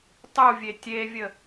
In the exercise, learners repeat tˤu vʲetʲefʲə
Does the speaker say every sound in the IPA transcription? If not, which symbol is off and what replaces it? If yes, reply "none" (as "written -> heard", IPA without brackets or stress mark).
fʲ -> vʲ